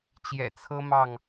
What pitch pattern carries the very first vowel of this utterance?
low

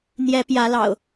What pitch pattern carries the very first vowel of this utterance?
rising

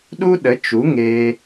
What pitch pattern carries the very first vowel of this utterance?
high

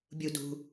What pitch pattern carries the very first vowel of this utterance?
low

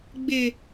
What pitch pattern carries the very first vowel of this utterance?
low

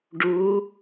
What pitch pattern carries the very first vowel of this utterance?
rising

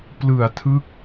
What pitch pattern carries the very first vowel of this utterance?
low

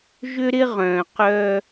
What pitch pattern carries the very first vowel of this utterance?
high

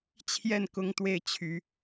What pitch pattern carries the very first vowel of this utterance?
falling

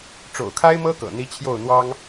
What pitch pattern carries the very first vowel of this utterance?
low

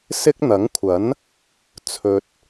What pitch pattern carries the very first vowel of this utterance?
high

